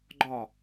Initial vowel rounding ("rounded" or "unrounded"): rounded